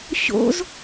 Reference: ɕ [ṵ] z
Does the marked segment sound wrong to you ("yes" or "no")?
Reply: yes